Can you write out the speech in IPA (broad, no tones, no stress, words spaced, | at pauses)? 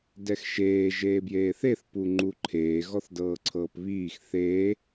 dɛxʃeː ʒeːbjeːθeθ puŋ͡ǃuǃʰeː ɣɔθdɤːǀʰɤːpβiːx θeː